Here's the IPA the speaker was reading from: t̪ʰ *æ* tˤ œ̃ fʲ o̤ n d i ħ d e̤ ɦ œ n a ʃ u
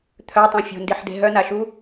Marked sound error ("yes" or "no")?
yes